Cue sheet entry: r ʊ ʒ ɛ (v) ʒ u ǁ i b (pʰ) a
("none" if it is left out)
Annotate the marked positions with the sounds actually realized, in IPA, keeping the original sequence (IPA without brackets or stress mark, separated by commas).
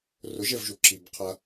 v, qʰ